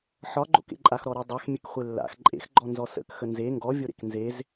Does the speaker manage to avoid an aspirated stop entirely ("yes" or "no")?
yes